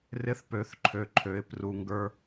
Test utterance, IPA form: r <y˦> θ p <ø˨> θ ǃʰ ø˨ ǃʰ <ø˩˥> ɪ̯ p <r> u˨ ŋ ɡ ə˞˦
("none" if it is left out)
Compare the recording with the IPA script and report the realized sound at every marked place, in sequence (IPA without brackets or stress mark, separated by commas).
ɪ˦, ø˩˥, ø˩˥, r